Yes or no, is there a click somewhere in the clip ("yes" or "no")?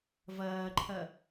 yes